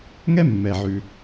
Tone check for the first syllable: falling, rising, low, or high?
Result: high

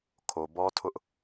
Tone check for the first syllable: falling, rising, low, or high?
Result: low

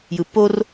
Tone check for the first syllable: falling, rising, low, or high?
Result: low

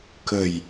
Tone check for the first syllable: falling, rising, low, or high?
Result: low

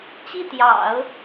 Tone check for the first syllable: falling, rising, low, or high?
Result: falling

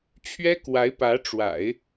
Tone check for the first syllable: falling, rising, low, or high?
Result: high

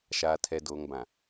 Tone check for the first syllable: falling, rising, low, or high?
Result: low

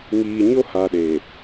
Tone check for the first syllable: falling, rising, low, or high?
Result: low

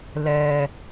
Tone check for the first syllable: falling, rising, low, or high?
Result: low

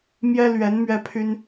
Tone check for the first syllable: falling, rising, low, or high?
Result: high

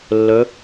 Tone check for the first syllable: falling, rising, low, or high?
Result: rising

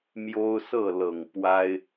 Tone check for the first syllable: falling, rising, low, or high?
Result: high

